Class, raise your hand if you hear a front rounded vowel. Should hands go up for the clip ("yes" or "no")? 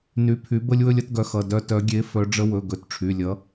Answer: yes